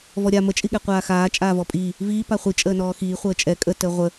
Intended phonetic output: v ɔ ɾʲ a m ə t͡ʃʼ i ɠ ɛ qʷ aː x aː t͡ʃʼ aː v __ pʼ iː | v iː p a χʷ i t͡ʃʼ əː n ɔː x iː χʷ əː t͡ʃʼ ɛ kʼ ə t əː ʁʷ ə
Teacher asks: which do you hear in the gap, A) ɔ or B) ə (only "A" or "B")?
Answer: A